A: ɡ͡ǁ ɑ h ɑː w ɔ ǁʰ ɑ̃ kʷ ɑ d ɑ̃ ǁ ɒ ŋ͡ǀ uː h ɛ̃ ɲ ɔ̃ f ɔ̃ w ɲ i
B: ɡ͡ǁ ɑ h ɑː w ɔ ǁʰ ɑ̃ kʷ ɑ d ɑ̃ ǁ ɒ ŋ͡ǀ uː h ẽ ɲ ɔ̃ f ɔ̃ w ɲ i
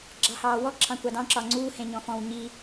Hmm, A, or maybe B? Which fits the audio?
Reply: B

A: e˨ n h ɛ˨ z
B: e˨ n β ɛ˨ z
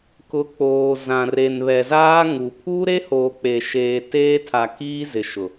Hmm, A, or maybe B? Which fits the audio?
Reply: B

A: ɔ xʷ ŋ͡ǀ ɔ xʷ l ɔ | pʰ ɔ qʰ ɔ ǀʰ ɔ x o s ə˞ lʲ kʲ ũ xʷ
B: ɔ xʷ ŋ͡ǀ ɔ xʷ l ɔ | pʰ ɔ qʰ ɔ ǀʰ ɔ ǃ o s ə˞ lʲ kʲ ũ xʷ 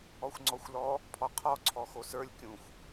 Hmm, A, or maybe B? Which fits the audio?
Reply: A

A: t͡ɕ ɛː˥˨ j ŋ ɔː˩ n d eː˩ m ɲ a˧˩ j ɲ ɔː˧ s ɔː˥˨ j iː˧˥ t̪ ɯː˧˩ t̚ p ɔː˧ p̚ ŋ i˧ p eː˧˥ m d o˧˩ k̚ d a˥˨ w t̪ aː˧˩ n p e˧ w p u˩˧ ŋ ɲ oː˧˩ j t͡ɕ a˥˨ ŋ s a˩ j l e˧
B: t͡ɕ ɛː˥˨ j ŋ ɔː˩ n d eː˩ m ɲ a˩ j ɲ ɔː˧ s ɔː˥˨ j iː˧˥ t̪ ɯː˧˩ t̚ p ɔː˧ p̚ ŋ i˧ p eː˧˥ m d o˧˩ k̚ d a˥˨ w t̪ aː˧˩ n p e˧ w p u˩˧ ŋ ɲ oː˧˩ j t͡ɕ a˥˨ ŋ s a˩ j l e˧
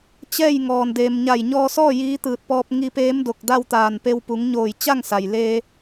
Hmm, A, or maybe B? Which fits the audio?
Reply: A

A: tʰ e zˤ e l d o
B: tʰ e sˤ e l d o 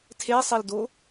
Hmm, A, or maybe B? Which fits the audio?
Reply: B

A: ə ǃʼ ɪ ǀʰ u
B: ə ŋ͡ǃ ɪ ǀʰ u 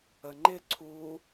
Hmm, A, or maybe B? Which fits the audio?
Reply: B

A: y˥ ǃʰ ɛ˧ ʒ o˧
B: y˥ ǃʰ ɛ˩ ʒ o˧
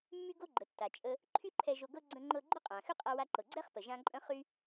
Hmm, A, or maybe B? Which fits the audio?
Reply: A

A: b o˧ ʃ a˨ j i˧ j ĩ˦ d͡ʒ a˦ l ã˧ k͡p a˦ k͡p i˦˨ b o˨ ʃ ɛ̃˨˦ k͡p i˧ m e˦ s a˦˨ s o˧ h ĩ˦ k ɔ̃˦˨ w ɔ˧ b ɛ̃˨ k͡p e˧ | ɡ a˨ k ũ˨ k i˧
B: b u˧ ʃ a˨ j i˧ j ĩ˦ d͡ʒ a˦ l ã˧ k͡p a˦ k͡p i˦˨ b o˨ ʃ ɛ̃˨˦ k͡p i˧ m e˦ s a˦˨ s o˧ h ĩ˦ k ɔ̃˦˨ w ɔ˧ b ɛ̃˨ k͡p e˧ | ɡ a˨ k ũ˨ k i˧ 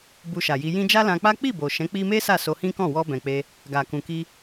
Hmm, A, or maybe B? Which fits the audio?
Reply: B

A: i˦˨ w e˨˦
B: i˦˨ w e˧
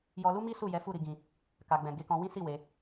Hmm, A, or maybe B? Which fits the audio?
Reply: A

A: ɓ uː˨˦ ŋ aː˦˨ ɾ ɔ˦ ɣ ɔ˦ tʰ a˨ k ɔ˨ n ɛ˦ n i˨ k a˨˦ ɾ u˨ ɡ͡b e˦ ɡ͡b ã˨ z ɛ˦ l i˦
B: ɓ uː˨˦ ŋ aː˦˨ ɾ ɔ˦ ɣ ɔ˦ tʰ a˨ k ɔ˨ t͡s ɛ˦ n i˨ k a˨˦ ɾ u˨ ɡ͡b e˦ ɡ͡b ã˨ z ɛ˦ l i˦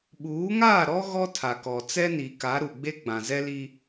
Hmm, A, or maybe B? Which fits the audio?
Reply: B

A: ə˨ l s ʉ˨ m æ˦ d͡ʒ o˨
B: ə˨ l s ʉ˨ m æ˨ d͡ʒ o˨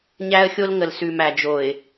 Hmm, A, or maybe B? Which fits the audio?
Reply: B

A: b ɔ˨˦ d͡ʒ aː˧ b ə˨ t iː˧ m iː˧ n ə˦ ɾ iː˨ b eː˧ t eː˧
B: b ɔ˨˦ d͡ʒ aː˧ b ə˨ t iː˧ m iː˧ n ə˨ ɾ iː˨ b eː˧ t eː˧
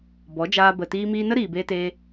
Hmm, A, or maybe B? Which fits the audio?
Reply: A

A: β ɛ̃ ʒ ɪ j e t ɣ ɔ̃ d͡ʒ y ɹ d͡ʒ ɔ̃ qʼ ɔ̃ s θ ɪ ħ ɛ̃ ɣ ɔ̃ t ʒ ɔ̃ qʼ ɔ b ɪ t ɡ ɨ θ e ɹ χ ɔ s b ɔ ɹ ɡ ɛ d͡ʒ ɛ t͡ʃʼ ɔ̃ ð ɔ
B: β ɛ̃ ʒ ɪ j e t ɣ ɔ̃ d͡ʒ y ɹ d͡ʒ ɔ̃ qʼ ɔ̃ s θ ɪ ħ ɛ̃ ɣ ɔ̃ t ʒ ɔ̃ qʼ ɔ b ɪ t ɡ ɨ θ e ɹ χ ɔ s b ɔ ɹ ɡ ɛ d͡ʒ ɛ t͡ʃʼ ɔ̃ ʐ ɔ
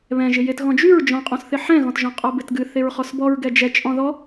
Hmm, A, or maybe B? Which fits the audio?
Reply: A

